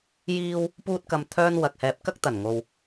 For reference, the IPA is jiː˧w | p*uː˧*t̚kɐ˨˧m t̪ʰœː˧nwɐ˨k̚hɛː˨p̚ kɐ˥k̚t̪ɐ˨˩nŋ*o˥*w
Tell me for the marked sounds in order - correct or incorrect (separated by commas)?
correct, incorrect